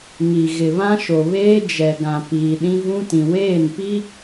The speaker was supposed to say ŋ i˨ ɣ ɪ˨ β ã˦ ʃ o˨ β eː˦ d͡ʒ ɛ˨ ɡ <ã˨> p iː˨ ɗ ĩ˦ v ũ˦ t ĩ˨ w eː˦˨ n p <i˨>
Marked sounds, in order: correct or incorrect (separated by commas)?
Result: correct, incorrect